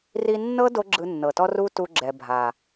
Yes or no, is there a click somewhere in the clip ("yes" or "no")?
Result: yes